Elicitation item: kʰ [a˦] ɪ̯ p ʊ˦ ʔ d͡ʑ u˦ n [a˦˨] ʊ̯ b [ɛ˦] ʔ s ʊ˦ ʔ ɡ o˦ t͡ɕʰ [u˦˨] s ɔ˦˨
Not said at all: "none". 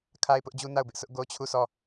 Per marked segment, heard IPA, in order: a˦, a˦˨, ɪ˦, u˦˨

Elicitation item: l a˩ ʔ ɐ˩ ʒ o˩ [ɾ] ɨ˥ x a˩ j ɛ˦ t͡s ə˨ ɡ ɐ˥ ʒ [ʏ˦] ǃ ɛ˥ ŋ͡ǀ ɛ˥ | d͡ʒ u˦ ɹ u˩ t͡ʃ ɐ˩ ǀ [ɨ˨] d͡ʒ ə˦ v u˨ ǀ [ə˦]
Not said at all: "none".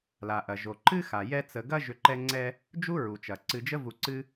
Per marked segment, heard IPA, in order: ǃ, ʏ˦, ɨ˨, ɨ˦

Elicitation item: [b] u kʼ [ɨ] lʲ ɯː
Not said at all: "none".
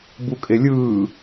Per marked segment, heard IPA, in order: b, e

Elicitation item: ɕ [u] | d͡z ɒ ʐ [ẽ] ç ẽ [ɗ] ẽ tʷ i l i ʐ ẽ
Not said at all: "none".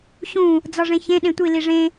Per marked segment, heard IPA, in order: ũ, ẽ, ɗ

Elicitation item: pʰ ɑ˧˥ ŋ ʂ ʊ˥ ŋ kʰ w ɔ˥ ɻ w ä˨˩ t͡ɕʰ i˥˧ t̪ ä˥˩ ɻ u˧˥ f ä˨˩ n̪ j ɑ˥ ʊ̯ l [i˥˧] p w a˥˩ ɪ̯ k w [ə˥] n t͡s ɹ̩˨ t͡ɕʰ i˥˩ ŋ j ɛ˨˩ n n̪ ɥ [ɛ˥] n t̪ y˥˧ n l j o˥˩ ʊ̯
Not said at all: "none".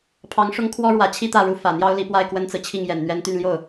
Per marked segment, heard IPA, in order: i˧˥, ə˥, ɛ˥

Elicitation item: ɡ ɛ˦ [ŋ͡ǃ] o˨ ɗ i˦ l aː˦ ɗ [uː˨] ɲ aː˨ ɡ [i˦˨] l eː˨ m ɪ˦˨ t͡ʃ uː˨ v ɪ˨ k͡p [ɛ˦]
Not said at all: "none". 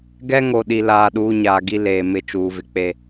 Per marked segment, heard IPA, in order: ŋ, uː˦, i˦, e˦

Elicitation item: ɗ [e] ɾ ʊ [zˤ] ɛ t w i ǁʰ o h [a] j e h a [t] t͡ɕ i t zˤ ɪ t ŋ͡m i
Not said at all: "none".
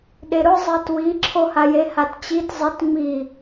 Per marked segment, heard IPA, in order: e, zˤ, a, t

